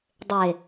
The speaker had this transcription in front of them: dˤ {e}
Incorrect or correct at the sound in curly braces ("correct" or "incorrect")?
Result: correct